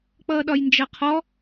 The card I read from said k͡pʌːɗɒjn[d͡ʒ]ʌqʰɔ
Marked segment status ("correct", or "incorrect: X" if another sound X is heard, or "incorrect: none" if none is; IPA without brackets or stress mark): correct